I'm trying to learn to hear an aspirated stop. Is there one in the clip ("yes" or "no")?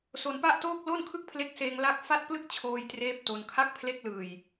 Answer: yes